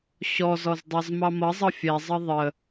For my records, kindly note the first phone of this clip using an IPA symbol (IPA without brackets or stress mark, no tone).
ɕ